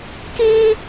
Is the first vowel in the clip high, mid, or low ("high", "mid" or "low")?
high